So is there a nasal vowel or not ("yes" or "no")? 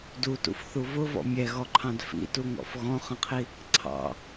yes